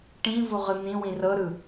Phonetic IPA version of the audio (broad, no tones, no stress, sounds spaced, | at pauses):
ʈ ĩ v u ʁ ɯ n̪ ĩ w ĩ r ɤ ɾ ɯ